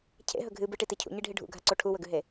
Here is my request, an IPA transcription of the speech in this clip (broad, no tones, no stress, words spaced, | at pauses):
cʰḛɦɵ ɡʱɨ bɨʈiti cʰṵɲiɖʱi ɖʱṵɡʱaǀo ʈʰuwɵɡʉɦe